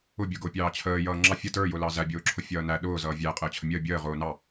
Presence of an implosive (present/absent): present